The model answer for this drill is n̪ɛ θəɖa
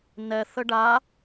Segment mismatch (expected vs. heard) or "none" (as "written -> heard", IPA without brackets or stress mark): none